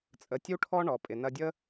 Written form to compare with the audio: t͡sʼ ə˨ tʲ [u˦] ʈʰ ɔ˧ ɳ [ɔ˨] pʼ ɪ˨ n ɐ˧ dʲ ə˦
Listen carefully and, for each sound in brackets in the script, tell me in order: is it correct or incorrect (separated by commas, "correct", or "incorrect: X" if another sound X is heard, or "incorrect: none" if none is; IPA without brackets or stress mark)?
incorrect: u˧, correct